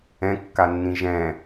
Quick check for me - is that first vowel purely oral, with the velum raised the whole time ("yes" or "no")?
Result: no